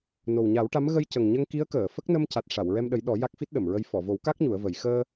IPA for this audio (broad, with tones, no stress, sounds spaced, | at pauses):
n o˨˩ w ɲ a˨˩˦ w ʈ a˧˥ m ɣ ə˧ j c ə˨˩ ŋ ɲ ə˧ ŋ k i˧˥ ə̯ k əː˨˩˨ f ə˦˥ k̚ n ə˧ m c a˨˩ t̚ ʂ a˨˩˨ w ɹ ɛ˧ m ɗ ə˨˩˦ j ɗ ɔ˨˩˦ j a˦˥ k̚ f i˦˥ t̚ ɗ ə˨˩˨ m ɹ ə˧ j f ɔ˨˩˨ v o˨˩˦ w k a˦˥ k̚ ɲ u˨˩˦ ə̯ v ə˨˩˦ j x əː˧